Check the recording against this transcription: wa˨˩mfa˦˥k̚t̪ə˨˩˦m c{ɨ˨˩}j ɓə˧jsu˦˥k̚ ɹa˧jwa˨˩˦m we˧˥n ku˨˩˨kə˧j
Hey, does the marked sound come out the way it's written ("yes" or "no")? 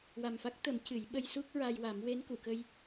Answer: no